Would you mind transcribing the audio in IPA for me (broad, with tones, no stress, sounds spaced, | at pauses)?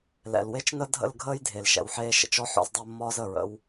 l ɛ̰˨ l w e˦ t͡ʃ n ə˦ dʱ ə̰˦˨ l ɡʱ əː˦ j dʱ e˨ l ʃ ɛ̰˨ w ħ eː˦ ʃ ə̰˨ t͡ʃ ɔ˦ ħ ɔ̰˦ z dˤ əː˦ mː ɒː˦ z əː˨ ɹ ə̰˦ w